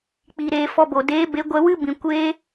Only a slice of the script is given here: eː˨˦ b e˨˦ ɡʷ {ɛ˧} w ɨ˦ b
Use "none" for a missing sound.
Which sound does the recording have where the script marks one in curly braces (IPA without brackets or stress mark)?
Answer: ɛ˧